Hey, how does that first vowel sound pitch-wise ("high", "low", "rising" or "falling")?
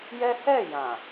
high